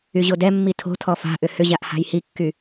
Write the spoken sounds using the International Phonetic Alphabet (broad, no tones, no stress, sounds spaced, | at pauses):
y ʑ o d ɛ mː i tʰ o̤ tʰ ɔ f a̤ ʔ ʏ h ʏ ʑ a ʔ h a̤ j h i kː y